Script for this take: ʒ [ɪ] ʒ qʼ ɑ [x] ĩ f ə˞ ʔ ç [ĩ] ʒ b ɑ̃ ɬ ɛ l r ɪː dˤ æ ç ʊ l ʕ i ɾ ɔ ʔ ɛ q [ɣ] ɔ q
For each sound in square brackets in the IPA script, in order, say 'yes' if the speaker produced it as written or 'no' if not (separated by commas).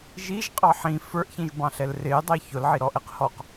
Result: no, no, yes, no